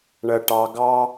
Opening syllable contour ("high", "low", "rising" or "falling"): low